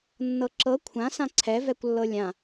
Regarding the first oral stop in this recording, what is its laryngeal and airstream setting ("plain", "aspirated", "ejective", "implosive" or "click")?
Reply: click